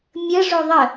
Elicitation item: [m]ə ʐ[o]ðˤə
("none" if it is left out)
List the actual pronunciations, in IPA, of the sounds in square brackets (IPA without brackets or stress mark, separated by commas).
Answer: mʲ, o